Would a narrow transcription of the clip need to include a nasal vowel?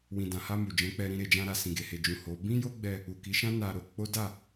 yes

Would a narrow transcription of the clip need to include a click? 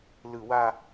no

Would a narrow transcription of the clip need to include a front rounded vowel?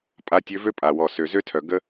yes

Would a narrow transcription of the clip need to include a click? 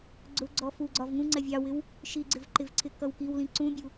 yes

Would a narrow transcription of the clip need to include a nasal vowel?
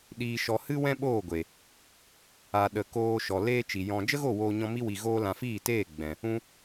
yes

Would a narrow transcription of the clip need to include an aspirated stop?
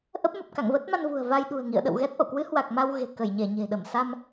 no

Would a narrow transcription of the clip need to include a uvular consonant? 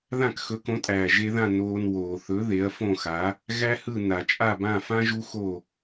no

